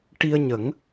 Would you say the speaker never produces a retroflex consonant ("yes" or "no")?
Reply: no